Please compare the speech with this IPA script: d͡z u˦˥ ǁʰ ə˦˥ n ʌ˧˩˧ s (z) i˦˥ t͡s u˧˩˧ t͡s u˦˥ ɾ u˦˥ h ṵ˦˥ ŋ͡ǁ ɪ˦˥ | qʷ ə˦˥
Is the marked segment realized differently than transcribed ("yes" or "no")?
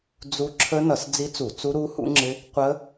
yes